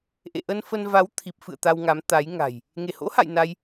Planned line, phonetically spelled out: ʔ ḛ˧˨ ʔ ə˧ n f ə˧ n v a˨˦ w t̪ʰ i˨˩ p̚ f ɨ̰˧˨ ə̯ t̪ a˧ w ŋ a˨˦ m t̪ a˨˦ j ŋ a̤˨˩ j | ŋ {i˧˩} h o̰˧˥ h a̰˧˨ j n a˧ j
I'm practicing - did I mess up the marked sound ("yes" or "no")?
yes